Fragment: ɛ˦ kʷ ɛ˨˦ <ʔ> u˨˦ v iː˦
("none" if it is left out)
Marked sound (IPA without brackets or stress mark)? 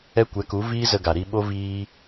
k